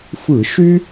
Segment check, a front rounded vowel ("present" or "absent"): present